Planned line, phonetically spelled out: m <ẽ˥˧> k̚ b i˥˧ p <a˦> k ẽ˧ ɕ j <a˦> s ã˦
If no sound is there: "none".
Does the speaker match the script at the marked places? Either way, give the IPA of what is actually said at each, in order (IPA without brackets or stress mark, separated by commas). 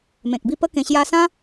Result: ẽ˨, ə˦, a˧